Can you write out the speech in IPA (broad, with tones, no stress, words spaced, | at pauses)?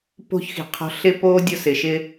po̤˥çxi̤˩qʰɔ̤˧ ɬɪ˧po˧ dʲʊ˧sɪ˩ʃɪ˧